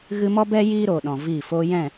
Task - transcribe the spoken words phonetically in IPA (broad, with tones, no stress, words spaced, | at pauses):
ɣɨ˧mɔ˦ bɛ˦ jiː˦ɾoː˨ɗɔ̃˨ viː˦˨ foː˧jɛ̃˦˨